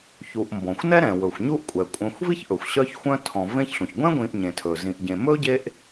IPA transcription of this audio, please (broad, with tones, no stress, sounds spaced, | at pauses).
ç u˨ ʔ m b ɔ̃˩ xʷ n ɛ˥ ɾ ɛ̃˩ w ɵ˩ xʷ ɲ u˦ ʔ kʷʼ ɛ˩ kʷʼ œ̃˨ xʷ v i˥ ç ʔ ɵ˩ xʷ ɕ œ˦ ç xʷ œ̃˦ tʰ ɔ̃˨ v ẽ˦ ç ɬ ũ˩ ç ɡʷ ɛ̃˥ ɡʷ ĩ˨ ʔ ɲ ẽ˩ tʰ ɵ˩ z ĩ˨ ʔ ɟ ẽ˨ m ɵ˥ ɟ e˦ ʔ